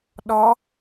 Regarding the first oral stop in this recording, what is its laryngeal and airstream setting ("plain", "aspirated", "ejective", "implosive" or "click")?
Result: implosive